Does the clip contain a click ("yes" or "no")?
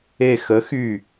no